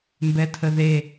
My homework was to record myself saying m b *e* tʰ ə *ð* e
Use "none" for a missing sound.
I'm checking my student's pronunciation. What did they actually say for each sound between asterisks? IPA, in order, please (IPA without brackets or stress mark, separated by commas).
ɛ, ð